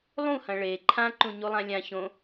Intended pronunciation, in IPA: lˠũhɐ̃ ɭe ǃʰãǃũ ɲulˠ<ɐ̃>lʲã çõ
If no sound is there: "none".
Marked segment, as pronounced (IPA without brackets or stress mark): ã